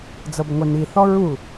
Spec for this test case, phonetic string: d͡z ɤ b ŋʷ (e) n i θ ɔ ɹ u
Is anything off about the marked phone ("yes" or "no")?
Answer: no